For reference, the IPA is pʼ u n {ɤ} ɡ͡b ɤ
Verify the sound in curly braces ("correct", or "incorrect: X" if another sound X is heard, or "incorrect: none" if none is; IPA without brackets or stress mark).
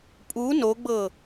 incorrect: o